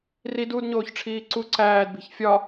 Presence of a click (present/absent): present